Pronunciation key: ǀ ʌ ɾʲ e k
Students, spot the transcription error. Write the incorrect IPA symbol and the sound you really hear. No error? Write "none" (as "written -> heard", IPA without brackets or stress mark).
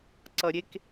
none